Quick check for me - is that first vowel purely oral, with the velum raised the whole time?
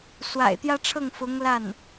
yes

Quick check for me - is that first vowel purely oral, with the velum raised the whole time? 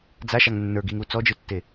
yes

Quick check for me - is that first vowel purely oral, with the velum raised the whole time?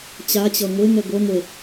yes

